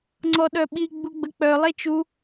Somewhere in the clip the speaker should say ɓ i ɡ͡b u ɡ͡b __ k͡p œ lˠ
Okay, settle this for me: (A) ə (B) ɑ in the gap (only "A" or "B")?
A